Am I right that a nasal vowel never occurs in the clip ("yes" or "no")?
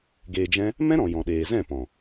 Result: no